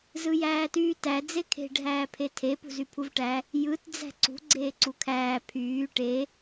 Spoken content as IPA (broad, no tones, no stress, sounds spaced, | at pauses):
z ɯ j æː t yː t æ d͡z e kʰ e̤ ɖʱ æː pʰ e tʰ e p ṳ z y pʰ u v ʈ æ | j ɯ t d͡z æ̤ ǀ ṳ ɡ͡ǀ eː ǀ u kʰ æː pʰ yː ʈ e